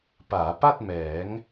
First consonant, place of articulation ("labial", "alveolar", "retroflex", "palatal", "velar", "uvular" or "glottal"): labial